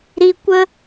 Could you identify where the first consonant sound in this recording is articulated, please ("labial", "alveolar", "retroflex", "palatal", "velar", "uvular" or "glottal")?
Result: alveolar